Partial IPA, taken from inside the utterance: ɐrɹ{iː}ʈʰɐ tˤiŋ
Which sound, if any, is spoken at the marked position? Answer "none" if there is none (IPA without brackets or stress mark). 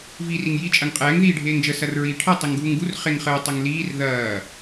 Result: iː